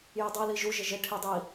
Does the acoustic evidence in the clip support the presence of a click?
no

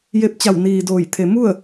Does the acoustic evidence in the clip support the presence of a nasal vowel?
no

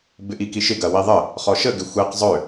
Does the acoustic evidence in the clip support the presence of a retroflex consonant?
no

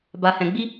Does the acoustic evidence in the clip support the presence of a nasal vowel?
yes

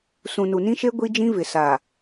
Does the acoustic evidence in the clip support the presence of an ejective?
no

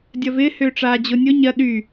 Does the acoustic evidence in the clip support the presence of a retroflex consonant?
yes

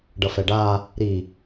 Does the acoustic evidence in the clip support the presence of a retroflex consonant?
yes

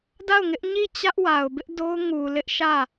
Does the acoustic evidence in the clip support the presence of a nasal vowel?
no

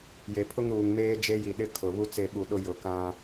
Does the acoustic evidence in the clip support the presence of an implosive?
yes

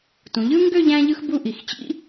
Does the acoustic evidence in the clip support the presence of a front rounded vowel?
yes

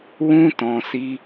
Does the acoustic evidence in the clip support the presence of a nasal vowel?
yes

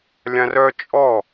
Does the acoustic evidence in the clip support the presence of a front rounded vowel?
yes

